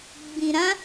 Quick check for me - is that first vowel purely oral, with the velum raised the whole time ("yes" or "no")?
no